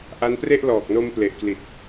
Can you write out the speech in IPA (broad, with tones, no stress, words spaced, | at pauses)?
ʔa˦˥npre˥˩ʔ lɔː˨˩k̚no˧mple˨˩ʔkli˨˩t̚